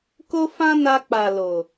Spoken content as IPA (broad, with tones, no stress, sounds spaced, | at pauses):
k o˦ f ã˦ n a˧ k͡p a˨ l o˨